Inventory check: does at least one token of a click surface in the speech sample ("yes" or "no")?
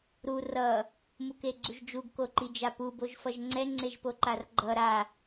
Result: yes